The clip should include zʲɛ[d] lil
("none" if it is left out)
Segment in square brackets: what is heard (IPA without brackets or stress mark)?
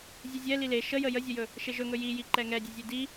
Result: none